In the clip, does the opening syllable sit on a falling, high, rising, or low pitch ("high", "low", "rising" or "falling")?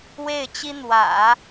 falling